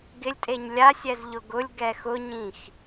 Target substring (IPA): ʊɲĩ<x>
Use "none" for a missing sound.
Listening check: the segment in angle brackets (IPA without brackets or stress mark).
x